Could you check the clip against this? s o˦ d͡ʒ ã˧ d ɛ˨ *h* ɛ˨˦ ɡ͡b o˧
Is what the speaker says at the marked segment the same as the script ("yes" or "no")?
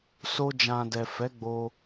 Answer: no